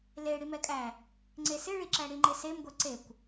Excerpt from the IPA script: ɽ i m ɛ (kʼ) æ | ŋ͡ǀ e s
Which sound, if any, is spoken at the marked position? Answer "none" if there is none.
kʼ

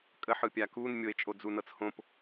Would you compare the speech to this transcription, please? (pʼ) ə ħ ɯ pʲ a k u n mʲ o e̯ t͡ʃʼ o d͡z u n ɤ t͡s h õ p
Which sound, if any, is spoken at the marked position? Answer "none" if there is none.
kʼ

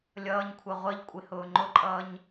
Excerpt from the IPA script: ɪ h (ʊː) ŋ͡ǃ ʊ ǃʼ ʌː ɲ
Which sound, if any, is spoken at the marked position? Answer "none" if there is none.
ʊː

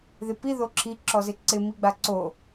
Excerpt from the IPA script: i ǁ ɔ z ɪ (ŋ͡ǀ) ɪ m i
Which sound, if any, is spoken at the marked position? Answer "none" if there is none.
ǀ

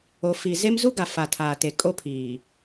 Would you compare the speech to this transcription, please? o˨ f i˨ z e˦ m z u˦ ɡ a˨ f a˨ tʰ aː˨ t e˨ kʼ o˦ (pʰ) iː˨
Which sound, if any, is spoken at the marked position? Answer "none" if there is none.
pʰ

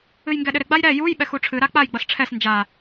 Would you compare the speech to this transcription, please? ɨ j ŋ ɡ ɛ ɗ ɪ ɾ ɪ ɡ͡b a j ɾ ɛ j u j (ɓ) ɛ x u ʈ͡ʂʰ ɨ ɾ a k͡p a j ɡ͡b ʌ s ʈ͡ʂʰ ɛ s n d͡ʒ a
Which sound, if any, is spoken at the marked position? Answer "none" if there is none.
ɓ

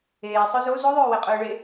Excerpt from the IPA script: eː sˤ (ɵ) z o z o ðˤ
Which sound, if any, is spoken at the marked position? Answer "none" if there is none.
ɵ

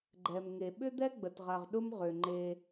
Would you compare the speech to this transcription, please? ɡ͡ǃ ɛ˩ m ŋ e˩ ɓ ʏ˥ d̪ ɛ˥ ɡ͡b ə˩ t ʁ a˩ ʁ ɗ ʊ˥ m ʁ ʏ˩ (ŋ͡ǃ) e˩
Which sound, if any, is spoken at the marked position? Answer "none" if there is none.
ŋ͡ǃ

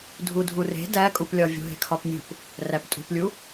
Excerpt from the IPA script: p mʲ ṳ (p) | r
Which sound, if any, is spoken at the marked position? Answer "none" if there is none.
p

